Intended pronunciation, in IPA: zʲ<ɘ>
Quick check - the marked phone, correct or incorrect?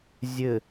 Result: correct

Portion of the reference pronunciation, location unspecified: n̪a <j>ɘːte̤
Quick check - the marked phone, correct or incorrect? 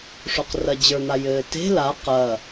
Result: correct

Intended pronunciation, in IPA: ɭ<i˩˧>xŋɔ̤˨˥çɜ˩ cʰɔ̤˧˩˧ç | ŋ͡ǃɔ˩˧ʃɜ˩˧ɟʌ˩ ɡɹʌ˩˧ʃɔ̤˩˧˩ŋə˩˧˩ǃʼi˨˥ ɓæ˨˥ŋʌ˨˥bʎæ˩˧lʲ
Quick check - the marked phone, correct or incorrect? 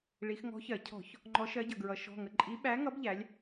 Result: correct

